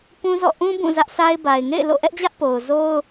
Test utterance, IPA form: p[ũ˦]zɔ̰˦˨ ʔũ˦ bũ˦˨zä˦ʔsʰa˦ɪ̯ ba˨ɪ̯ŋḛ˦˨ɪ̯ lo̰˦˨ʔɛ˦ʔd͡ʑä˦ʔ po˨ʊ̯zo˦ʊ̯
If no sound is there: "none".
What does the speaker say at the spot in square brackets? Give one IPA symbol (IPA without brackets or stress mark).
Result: ũ˦